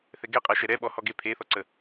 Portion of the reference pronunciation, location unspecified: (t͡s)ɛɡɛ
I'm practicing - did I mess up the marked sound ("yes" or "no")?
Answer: yes